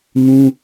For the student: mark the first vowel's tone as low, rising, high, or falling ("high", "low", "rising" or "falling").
high